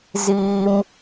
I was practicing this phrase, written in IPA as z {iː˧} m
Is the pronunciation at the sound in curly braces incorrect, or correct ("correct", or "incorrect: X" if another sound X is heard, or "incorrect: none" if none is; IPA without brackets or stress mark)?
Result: correct